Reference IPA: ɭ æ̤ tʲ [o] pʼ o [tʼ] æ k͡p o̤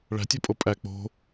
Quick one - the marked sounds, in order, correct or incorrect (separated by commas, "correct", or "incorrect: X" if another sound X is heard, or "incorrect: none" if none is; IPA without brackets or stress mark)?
correct, incorrect: pʼ